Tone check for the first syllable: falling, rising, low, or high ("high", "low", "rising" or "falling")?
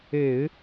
low